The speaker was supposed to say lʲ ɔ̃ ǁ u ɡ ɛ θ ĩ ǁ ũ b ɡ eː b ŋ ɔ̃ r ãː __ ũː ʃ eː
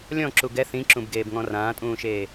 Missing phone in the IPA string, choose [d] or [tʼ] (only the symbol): tʼ